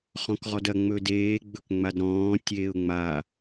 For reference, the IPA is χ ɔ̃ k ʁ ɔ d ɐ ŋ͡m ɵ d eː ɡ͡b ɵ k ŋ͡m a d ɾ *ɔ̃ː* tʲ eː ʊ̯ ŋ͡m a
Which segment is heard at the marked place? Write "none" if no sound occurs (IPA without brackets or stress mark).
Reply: ɔ̃ː